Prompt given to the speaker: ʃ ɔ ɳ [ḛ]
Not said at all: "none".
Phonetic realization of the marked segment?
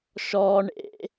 ḛ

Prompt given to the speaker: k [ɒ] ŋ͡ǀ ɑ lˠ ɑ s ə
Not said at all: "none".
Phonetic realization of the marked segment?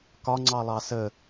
ɒ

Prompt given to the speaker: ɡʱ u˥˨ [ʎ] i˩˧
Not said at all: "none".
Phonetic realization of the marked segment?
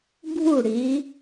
ɽ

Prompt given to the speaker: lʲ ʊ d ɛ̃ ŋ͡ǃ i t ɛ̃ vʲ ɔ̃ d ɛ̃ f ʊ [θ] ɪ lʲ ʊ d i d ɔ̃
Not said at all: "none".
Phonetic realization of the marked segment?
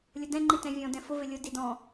v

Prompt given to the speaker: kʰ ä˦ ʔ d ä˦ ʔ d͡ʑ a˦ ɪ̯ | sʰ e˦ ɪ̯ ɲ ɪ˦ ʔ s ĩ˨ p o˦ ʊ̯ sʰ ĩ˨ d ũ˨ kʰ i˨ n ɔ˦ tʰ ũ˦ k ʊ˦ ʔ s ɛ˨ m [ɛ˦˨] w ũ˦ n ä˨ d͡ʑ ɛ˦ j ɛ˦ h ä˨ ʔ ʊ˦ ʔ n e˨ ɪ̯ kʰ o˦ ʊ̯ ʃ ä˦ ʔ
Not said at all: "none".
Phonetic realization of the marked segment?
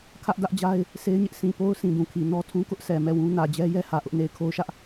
ɛ˦˨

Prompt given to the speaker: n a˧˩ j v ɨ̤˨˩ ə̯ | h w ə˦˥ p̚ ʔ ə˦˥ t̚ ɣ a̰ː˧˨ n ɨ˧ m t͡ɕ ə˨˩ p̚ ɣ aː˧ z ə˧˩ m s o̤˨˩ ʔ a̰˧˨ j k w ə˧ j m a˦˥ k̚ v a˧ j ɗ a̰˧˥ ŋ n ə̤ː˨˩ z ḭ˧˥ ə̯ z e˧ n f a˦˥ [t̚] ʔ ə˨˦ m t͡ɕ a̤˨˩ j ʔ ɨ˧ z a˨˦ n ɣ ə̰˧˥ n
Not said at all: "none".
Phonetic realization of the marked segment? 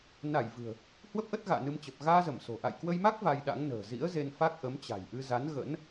k̚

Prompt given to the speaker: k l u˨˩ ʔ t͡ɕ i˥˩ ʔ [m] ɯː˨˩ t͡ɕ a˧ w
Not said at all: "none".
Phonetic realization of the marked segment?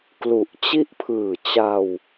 pʰ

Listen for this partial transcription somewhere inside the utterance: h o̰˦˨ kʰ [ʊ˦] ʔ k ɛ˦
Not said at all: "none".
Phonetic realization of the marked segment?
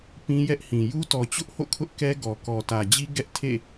ʊ˦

